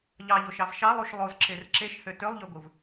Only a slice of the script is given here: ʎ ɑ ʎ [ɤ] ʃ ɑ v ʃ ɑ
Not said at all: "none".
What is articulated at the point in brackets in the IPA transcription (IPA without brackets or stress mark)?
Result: o